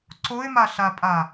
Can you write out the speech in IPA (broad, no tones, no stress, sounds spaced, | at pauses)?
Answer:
ǀ o ɪ̯ m a ɬ a pʼ a